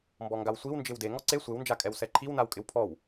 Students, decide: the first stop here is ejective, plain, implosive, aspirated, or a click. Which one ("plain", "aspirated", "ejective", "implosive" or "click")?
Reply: plain